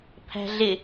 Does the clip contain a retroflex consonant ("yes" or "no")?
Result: no